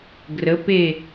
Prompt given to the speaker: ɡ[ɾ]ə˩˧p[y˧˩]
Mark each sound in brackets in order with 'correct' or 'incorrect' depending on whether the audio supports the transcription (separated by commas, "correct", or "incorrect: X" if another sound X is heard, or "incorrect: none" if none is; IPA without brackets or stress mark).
incorrect: r, incorrect: e˧˩